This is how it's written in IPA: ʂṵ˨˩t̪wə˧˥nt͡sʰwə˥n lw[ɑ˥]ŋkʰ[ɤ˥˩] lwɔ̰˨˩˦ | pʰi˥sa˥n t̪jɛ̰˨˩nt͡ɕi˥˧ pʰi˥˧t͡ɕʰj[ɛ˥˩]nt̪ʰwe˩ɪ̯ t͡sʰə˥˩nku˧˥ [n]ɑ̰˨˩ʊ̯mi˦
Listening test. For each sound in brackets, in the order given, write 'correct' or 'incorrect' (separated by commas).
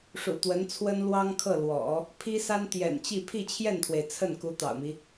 correct, correct, correct, incorrect